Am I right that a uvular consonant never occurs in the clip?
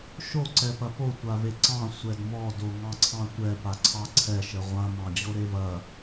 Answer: no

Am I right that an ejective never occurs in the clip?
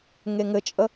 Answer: no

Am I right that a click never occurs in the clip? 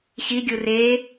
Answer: yes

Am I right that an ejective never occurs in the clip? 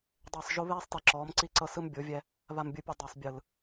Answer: yes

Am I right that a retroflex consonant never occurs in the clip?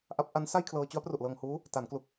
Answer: yes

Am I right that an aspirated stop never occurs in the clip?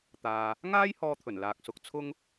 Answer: no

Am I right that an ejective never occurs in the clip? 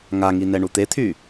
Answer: yes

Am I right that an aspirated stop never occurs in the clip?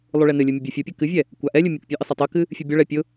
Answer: yes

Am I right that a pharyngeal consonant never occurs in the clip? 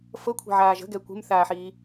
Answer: no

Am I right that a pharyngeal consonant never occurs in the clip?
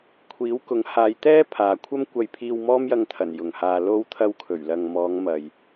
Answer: yes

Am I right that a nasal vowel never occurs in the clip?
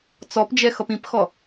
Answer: no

